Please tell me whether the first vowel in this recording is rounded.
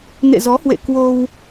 no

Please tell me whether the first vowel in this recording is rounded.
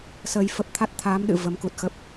no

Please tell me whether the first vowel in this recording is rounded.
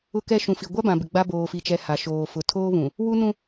yes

